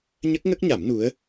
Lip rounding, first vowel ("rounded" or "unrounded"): unrounded